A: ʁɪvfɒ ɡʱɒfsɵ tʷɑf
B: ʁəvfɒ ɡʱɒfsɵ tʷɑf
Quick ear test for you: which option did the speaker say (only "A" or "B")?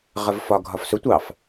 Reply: B